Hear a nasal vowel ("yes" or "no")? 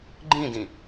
yes